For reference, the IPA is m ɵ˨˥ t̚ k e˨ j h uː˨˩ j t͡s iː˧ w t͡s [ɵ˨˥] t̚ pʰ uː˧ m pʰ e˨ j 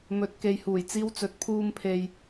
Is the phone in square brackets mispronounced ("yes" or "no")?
no